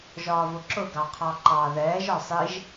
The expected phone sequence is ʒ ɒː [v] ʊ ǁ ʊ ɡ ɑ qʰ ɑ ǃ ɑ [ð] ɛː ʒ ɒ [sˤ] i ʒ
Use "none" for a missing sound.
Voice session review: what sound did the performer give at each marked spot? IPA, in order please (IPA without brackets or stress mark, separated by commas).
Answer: v, ð, sˤ